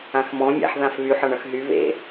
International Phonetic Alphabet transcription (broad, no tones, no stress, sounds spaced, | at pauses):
ã x m ɔ̃ mʲ a̰ ħ ð ã f β y ħ ɒ ɳ ʌ x ɦ y β ḛ